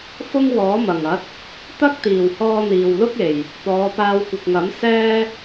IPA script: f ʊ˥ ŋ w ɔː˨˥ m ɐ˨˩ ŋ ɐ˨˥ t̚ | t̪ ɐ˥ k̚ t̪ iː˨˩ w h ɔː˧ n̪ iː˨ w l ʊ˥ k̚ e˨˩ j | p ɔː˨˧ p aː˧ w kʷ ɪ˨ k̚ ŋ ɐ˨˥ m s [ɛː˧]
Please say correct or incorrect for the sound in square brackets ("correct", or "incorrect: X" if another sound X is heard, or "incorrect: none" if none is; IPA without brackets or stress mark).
incorrect: ɛː˥